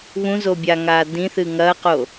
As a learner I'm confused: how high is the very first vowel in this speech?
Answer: high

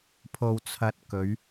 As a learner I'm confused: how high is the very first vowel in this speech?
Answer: mid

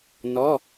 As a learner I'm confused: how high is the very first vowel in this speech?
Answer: mid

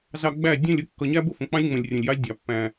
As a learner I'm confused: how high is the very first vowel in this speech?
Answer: low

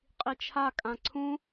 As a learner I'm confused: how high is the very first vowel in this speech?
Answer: high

